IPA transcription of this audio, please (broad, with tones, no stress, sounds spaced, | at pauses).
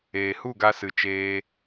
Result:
eː˨ h u˦˨ ɡ a˧ s ɨ˧ t͡ʃ eː˦